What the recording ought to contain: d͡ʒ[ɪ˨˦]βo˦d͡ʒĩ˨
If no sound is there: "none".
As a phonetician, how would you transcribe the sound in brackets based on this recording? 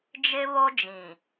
ɪ˦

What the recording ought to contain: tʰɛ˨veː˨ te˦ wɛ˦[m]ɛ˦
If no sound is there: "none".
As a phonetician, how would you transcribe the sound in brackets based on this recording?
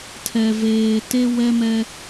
m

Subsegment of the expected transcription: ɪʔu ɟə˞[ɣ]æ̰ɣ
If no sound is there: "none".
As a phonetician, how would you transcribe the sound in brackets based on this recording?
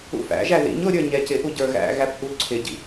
ɣ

